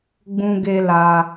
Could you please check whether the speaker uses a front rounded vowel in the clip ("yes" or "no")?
no